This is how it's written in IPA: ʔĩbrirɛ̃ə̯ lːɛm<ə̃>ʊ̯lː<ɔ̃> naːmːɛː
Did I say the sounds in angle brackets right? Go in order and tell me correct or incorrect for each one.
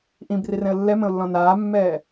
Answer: correct, correct

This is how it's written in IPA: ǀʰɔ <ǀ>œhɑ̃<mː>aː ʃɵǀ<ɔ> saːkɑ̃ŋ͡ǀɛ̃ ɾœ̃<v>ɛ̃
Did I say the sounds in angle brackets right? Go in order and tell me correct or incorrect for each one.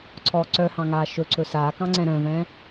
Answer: correct, incorrect: ŋ, incorrect: ɵ, correct

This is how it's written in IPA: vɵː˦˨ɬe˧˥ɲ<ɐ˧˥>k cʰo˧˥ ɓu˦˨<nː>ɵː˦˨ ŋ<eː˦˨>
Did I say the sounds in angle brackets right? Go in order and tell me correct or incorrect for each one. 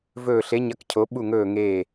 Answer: correct, incorrect: ŋ, correct

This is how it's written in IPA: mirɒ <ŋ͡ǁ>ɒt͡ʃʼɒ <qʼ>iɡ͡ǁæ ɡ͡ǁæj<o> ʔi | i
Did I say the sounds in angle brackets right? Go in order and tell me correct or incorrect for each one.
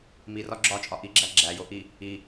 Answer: incorrect: ɡ͡ǁ, incorrect: ʔ, correct

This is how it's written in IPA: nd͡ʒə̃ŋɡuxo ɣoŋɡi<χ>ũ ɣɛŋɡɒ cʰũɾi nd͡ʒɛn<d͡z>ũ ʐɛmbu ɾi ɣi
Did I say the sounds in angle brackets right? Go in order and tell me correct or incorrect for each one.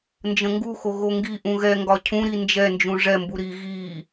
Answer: incorrect: ʔ, incorrect: d͡ʒ

